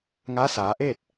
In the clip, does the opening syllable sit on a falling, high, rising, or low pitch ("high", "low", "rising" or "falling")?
rising